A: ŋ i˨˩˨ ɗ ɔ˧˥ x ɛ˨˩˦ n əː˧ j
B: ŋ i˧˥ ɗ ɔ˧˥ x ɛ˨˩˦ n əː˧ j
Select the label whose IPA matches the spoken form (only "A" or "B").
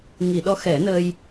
A